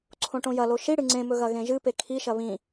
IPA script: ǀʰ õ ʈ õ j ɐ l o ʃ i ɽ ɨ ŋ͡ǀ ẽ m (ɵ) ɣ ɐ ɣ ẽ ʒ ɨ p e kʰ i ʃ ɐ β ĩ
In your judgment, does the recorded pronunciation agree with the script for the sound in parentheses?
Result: yes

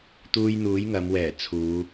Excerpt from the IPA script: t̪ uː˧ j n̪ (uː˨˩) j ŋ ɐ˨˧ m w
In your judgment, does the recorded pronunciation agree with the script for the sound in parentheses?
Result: no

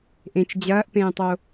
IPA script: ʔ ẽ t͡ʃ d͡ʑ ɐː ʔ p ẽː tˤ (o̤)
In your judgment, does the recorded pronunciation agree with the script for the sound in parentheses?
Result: no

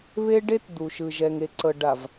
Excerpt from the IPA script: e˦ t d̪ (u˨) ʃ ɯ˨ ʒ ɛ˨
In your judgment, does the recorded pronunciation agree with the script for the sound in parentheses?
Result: yes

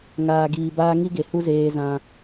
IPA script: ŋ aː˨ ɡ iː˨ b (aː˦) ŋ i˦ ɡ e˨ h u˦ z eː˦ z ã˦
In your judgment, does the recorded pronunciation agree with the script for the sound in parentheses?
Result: yes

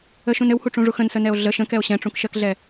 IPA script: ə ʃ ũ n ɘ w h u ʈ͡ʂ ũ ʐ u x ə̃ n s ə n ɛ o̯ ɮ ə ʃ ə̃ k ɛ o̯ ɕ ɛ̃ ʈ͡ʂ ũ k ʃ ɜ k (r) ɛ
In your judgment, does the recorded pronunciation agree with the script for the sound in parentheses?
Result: no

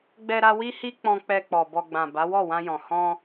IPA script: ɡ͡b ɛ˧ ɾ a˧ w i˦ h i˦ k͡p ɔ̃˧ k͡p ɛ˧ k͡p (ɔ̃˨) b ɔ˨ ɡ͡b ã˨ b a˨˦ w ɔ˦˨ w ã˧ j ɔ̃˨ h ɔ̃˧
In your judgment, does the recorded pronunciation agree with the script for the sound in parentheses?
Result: no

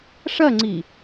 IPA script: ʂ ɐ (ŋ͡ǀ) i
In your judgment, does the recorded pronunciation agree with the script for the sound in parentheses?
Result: yes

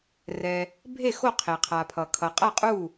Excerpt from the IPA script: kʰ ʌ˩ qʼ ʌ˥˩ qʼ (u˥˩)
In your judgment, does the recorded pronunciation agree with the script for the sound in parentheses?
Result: yes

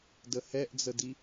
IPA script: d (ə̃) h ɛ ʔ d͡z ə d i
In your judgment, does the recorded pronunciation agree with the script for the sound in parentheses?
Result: no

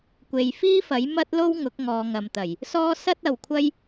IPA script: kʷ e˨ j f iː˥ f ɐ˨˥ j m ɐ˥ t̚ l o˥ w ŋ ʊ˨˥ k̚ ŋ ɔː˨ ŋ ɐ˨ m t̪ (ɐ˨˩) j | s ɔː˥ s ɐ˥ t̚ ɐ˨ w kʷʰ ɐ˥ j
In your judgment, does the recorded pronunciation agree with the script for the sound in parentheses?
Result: yes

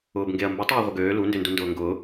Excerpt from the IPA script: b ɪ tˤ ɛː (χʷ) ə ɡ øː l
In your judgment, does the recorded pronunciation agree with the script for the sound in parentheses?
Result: no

